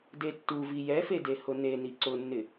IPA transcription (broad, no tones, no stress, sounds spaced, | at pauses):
d e tː u v i j ɛ f e d e h ʊ n e n i ǀ ʊ nː ɪ